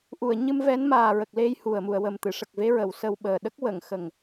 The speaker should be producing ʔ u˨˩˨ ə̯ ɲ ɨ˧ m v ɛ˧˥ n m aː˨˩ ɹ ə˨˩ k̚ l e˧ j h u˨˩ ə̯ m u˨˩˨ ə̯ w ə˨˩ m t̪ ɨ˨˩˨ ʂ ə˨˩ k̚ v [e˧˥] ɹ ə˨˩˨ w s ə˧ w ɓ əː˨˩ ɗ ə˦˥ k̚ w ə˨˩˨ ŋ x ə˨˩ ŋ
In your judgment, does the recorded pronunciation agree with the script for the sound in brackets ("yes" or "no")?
yes